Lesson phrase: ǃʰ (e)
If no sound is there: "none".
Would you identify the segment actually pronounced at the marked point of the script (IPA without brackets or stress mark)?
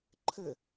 ɘ